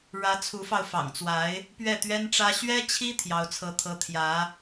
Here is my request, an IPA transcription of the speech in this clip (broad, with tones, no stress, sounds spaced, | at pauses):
ɻ ä˧˥ t͡sʰ u˧˥ f ɑ˧ ʊ̯ f ɑ̰˨˩ ŋ t͡s w a˧˥ ɪ̯ | p ɥ ɛ˥˩ t̪ ɥ ɛ˥ n ʈ͡ʂ ä˥ ɕ ɥ ɛ˥ t͡ɕʰ i˥ t̪ʰ j ɑ˥ ʊ̯ t͡sʰ ɤ˥ t̪ʰ ɤ˥ t̪ʰ j ä˧˥